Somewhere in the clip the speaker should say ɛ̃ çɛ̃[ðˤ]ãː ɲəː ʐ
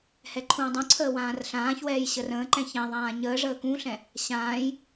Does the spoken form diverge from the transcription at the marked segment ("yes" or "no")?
no